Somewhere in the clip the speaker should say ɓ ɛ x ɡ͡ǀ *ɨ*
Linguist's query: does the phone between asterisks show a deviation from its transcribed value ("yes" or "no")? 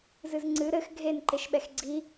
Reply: yes